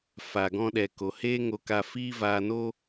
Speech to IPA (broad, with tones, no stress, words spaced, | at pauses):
fa˨ɡɔ̃˧ɗɛ˨ ko˨ heː˦ ŋo˧ka˧fiː˦ vaː˧no˦